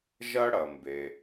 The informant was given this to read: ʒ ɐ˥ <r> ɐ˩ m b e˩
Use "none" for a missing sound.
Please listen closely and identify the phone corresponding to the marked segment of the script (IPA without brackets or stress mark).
ɽ